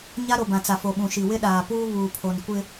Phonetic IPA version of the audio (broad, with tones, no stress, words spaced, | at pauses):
ɲa˦ɾo˨bã˨t͡sa˨ fo˨ɓũ˨ʃi˨ wɪ˦ ɗaː˨puː˦ βuː˨pʰo˨nkʷɪ˦